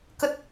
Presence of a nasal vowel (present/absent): absent